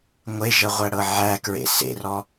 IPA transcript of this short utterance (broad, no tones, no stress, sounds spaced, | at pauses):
ŋʷ e ʒ ə ʁʷ æ ɽ ɤ ʕ æ k ɹ ḛ s ḛ r ɔ